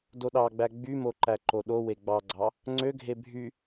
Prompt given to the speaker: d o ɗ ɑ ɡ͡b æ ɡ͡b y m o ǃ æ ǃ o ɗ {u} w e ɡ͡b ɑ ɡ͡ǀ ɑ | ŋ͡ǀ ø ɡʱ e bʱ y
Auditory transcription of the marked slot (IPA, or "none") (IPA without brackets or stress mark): o